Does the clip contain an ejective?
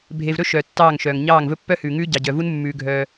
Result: no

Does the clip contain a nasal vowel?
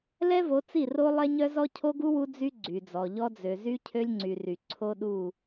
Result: no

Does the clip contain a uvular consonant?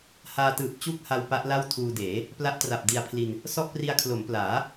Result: no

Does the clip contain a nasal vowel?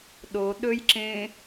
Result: yes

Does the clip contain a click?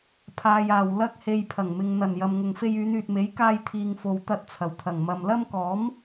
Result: no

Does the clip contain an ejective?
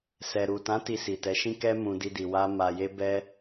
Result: no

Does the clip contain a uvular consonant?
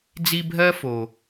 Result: no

